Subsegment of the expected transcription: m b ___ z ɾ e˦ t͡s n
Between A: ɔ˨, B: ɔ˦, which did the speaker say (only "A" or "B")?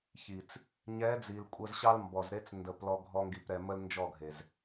A